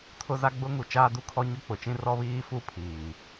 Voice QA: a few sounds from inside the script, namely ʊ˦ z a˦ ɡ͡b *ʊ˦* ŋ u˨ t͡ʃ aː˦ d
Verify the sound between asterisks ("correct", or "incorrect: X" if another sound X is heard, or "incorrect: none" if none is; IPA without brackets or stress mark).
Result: correct